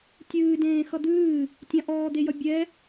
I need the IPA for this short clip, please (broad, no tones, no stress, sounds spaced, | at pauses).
tʲ ɨː d ẽː x ʌ d̪ ɨː | tʲ ɑ̃ ʔ ɔː d̪ e j ʌ bʲ ɛ